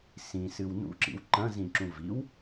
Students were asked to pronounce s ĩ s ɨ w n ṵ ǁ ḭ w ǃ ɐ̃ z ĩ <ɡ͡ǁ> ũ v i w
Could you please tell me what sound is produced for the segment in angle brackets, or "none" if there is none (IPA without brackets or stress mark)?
ǁ